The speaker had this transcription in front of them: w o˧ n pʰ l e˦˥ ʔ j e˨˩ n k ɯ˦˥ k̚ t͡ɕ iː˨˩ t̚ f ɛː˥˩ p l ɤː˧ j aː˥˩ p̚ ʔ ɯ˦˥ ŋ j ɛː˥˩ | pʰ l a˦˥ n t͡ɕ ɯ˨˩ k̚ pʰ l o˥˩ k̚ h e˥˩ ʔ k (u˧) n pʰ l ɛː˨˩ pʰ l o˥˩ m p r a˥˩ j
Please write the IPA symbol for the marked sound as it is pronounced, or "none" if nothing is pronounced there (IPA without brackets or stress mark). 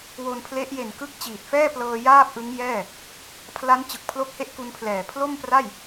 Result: u˧